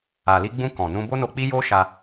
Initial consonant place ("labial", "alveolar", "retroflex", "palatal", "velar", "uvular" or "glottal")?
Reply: alveolar